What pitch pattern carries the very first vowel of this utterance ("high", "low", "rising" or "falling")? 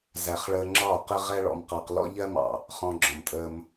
low